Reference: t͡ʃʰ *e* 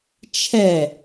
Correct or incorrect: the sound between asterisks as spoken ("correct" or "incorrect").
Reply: incorrect